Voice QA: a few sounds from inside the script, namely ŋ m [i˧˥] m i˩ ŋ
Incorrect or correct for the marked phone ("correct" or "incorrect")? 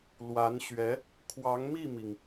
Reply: incorrect